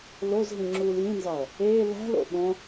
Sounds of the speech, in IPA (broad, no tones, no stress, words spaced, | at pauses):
lozɦĩ ŋ͡ǁuːljĩnzɒɐ̯ | eː læ̤lo̰ ɓõ